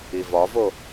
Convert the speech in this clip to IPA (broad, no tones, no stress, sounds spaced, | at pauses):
i v ɒ v o